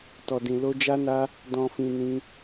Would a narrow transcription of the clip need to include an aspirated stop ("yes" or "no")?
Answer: no